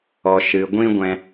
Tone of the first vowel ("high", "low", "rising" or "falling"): low